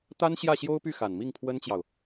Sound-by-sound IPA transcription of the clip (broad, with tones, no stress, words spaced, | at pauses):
t̪a˥nɕjä˥˩ ɕjo˥ʊ̯py˥˩xa˨˩n mi˥˩ŋpʰwə˥nt͡ɕjɑ˨ʊ̯